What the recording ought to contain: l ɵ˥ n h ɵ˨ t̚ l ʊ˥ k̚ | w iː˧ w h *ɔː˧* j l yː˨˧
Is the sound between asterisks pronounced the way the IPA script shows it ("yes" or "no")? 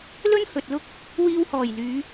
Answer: no